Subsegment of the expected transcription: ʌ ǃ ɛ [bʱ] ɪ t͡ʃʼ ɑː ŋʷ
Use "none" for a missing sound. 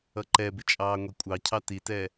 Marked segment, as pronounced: b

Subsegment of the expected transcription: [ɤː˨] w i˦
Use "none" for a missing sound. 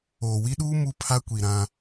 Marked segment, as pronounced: oː˨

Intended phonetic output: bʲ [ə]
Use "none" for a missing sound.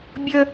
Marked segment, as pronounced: ə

